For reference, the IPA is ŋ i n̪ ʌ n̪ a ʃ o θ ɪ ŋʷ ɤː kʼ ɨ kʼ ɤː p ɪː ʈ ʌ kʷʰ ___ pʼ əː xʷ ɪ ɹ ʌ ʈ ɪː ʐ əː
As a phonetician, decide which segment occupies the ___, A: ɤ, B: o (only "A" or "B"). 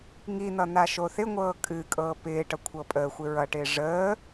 A